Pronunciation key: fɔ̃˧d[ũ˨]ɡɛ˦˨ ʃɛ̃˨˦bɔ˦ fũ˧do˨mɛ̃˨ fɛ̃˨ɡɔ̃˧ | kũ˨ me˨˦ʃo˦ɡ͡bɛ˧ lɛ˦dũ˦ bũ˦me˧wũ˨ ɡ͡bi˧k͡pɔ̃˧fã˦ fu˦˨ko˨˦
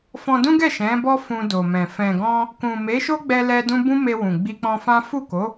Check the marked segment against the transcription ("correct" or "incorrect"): incorrect